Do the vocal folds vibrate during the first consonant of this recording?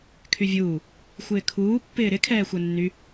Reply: no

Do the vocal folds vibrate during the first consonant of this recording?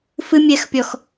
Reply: no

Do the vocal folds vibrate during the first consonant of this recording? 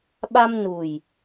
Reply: yes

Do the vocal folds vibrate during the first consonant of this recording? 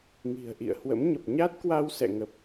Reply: yes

